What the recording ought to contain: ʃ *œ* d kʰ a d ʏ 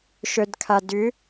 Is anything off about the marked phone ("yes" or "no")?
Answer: no